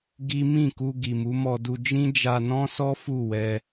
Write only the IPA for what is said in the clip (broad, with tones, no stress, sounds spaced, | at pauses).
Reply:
ɡ i˦ m ĩ˦˨ k u˧ ɡ i˨ m u˨˦ m ɔ˧ d u˧ d͡ʒ ĩ˦ d͡ʒ a˧ n ɔ̃˦ s ɔ˦ f u˦˨ w ɛ˧